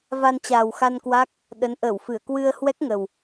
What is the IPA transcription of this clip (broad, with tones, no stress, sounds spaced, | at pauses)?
v a˧ n t͡ɕ aː˨˩ w x a˧ n k w a˦˥ k̚ | ɗ ə˨˦ n ʔ əː˧˩ w f ɨ˧˩ ə̯ k w ɨ˧ ə̯ h w ɛ˦˥ k̚ ŋ ə˨˩ w